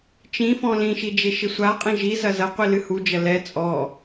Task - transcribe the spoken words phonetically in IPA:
t͡ʃĩ fɔ̃lĩʃi d͡ʒeʃɪsʷaqʼĩ ʒizɐ zɐqʷi lɨhud͡ʒɐ lɛ t͡sʼɔ

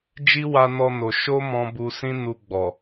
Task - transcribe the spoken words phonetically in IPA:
d͡ʒi˦wa˧nɔ˧no˨ ʃo˧ mɔ̃˧bu˧sĩ˦nu˧ ɡ͡bɔ˨

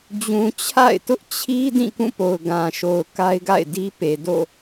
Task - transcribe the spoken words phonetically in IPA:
d͡ʑũ˨t͡ɕʰa̰˦˨ɪ̯tʊ˦ʔ t͡ɕʰi˦ dĩ˦˨kũ˦˨po˨ʊ̯ ɡã˨ʃo˨ʊ̯ ka˦ɪ̯ɡa̰˦˨ɪ̯di˦pe˨ do̰˦˨

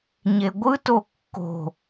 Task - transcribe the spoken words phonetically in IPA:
ɲeɡʷɯto kːo̤

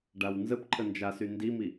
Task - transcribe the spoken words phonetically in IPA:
ɖawnzəp ǃʰənd͡ʒasy ndimi

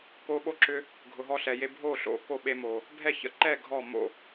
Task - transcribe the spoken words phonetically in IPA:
ko˦ ɓo˥˨ǁʏ˦ | ɡʱʊ˨ɦɔ˥˨ɬɛ˨je˦ bʱo˥˨ɬo̰˥˨ko˥˨ ɓe˦mo˨ | bʱɛ˥˨çə̰˥˨ ǃɛ˥˨ ɡʱɔ˥˨mo̰˥˨

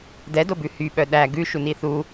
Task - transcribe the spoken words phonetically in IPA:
dɛdobʉ hyɓœ ɗæ ɡʉʃuni θu

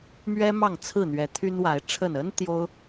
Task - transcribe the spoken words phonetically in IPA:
mɥɛ˦ mɑ˥˨ŋt͡sʰɹ̩˥˨n̪ɥɛ˨˦ t̪ʰy˦nwa˨˦ɪ̯ʈ͡ʂʰə˥˨n ə˦n t̪jo˦ʊ̯

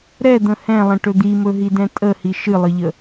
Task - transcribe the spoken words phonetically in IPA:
ɾɛd̪ə̃ hɛ̃lˠə̃ʈɵ d̪imɵɦidɛ̃ tʼəhi ʃɨlˠɨʎə

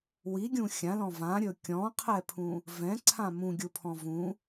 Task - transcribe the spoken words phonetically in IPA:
wiɡʲũ xʲãlɔ̃ vãɾʲɵ kʲɔ̃qʰɛpʰũ | vɛ̃ǀʰã mũɡʲupʰɔ̃ vũ

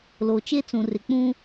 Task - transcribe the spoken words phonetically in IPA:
lo˨t͡ʃe˦t͡sũ˨ rɪ˨k͡pũ˦

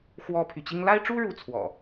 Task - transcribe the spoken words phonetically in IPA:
xwɔ˦pʰy˨ t͡ɕi˦ŋ la˦ɪ̯ʈ͡ʂu˦ ɻu˦t͡sʰwɔ̰˨˩

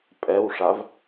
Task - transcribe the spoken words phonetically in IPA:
pʼɛwʂav

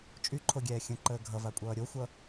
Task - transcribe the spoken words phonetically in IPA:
t͡ʃʼyǃʰoɡʲɛː xʲə̃ǃəː ɡʱʌvakʷʼʌː ɾʲoxʷʌ

